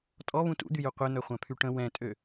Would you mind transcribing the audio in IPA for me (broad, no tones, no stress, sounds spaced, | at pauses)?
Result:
tʼ ɔ β ũ t ṵ d̪ y j u qʷ e n̪ œ χʷ ã pʰ y ʈ ə̃ w ɛ̃ tʼ ø